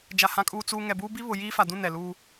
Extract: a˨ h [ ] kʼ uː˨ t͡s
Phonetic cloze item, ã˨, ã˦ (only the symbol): ã˨